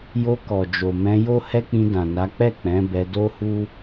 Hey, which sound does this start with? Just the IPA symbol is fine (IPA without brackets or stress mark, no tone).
j